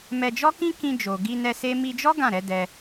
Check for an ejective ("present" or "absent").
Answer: absent